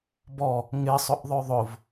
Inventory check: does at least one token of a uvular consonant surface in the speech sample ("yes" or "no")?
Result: no